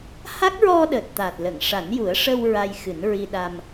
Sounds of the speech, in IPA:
h a˦˥ k̚ ɹ ɔ˧ ɗ əː˨˩ t̚ t̪ aː˨˩ t̚ l ə˨˩˨ ŋ ʂ a˨˩˦ n j u˨˩˦ ə̯ ʂ ə˧ w ɹ a˧ j x ɨ˨˩˦ n ɹ i˧ ɗ a˧ m

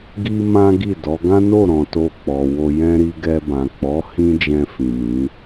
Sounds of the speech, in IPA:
ɡ i˦ m ã˦ ɡ i˦˨ d ɔ˨˦ ɡ ã˦ n o˦˨ ɾ ɔ̃˨ t o˧ k͡p ɔ˨ w o˧ j ɛ̃˦ ɾ i˧ ɡ ɛ˧ b ã˨ k͡p ɔ˨˦ h ĩ˦ d͡ʒ ɛ̃˧ f ĩ˨ m ĩ˨˦

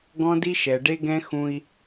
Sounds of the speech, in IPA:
ɡ ɔ̃˦ d i˦ ʃ ɛ˨ ɖ e˦ ɡ ɛ̃˦ x ũ˦ i̯

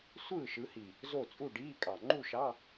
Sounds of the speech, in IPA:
sʷ ɯː˥˨ ʃ ɯ˨˦ h i˨˩ | z o˥˨ t͡sʼ u˥˨ ɖ iː˧˥˧ kʼ ɑ˨˩ ŋ͡ǃ u˥˨ ʃ ɑ˧˥˧

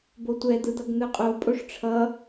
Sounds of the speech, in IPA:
b o tʷ ɛ d̪ ɯ d̪ ʌ ɡ n̪ ɯ qʼ o pʼ o ʂ ʈ͡ʂʰ ʌ

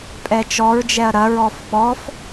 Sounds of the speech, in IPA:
pʼ ɛ t͡ʃ ɔ ɹ d͡ʒ ɛ ɐ̯ ɾ ɐ ɹ ɔ f ɓ ɔ f

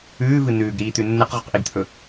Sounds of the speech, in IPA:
ʉː v ɨ n̪ ʉː ɡ ɾ iː t̪ ʉ nː ɨ q ʁ ʉ q ʔ i ɡ t̪ʰ ɵ

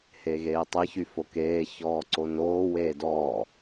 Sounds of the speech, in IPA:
h e ɣ eː tˤ e ç y f o k eː ç ɔː ǀ o n oː w eː d ɔː

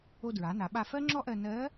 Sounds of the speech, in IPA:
o˧ d ɹ a˩˧ n a˩˧ ɓ a˧ f ɜ˥ ŋ͡ǁ ɔ˥ ʔ ɜ˧ n ɜ˧˥

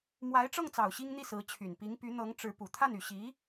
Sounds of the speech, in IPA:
m w a˧˥ ɪ̯ ʈ͡ʂ ɤ˥˩ ŋ t͡s ɑ˨˩ ʊ̯ ɕ i˥ ŋ n̪ i˥˩ s ɹ̩˧˥ t͡ɕʰ y˨˩ n p i˧˥ ŋ p y˧˥ n̪ ɤ˧˥ ŋ ʈ͡ʂ ɻ̩˧˥ p u˨˩ t̪ʰ a˥˩ n y˨˩ ɕ i˧˥

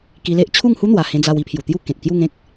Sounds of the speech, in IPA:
k i˧ l e˦ ʔ t͡ɕʰ u˥˧ ŋ h u˦ n̪ w a˨˩ h ẽ˧ d͡z a˧ w i˥˧ pʰ j u˨˩ t̪ j u˥˧ k ẽ˨ t̚ k j u˥˧ ŋ ẽ˦ k̚

